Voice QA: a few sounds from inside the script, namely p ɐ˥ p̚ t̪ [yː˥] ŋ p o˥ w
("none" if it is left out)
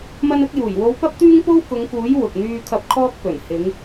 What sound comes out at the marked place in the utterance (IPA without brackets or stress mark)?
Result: yː˥